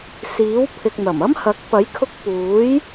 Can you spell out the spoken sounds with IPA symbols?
s iː˨˥ w pʰ ɪ˨ k̚ n̪ ɐ˨˩ m ɐ˥ m h ɐ˨˥ k̚ p ɐ˨˥ j kʰ ʊ˧ k̚ p uː˨˥ j

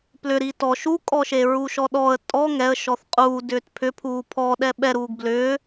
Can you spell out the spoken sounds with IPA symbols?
p l ʏ ɾ i t ɔ ʃ u kʼ ɔ ʃ e ɹ u ʃ ɔ ɗ ɔ ə̯ tʼ ɔ ŋ ɛ ə̯ ʃ ɔ θ qʼ uː d ʏː t pʰ ʏ pʰ uː pʰ ɔ ɗ ɛ ɓ ɛ ɾ uː ɡ b l ʏː

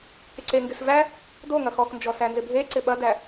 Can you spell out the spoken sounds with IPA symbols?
k ɪ ǀ e ŋ ɡ ɪ s v æ | d o ŋ ɐ x ɔ k n d͡ʒ ɔ s æ n z ɪ bʱ e ǀ ɪ ɓ ɐ d æ

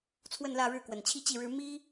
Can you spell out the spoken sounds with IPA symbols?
t͡sʰ w ə˥˧ n l ä˥˧ ɻ ɻ̩˥˩ k w ə˨˩ n t͡ɕʰ i˥˧ t͡ɕ i˥˩ ɻ ɻ̩˥ m i˥

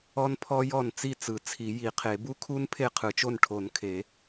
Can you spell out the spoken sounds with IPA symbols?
ɔ˦˥ n pʰ ɔ˦˥ j ɔ˥˩ n t͡s i˥˩ t͡s ɯ˨˩˦ t͡sʰ i˨˩˦ j i˨˩˦ qʰ e˨˩˦ b u˦˥ kʰ u˦˥ n pʰ e˥˩ qʰ ɯ˨˩˦ t͡ʃ o˥˩ n ʈʰ o˨˩˦ n kʰ e˨˩˦

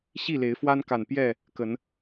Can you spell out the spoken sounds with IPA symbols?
ɕ i˥˨ l e˨˦ ɪ̯ f w a˦ n k a˨˩ n p j ɛ˥˨ | k ə˨˦ n

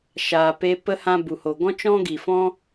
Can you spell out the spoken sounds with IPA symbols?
ʃ aː˨ p e˧ p ə˦ h ã˦ b u˨ h o˨ ɡ ɔ̃˦ t͡ʃ ɔ̃˦ ɡ i˨ f ɔ̃˦

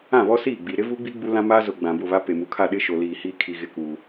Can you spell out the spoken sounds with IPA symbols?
ã˦˨ β ɔ˦ s iː˦˨ ɡ͡b i˨ ɾ ɪ˦ v uː˦ ɡ͡b i˦ ɡ͡b u˦ l ã˦ m aː˦ z ʊ˨ ɡ͡b ã˨ b ʊ˦˨ β a˦ p e˨ m u˨ kʰ a˦˨ ɗ ɪ˦ ʃ o˨ l iː˨ h iː˦ kʰ i˨ ɣ ɪ˦ k uː˨

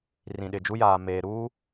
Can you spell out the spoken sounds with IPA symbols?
r ĩ˨ ɗ ɪ˨ d͡ʒ u˦ j aː˨ m eː˨ ɾ uː˦

